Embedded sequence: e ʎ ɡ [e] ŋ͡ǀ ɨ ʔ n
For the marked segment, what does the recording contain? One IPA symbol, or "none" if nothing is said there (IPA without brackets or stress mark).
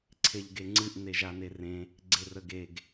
e